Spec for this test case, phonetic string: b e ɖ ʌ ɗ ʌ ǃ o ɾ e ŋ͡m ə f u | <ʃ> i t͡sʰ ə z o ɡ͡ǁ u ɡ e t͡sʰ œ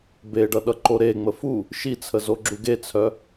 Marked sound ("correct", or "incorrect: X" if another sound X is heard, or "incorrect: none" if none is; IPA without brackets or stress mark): correct